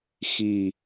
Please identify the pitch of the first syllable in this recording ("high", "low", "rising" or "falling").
falling